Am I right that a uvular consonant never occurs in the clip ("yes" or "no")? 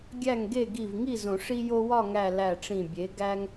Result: yes